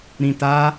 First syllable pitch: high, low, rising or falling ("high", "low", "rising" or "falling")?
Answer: low